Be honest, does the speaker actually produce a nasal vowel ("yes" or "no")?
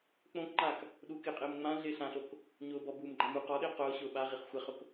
yes